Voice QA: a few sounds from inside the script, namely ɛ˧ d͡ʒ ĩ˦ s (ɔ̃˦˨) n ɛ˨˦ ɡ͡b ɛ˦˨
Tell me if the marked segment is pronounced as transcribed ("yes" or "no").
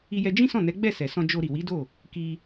yes